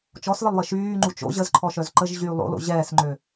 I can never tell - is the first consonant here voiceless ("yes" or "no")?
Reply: yes